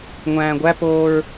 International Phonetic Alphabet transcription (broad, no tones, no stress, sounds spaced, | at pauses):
ŋʷ æ̃ː ɡʷ æ p oː ɹ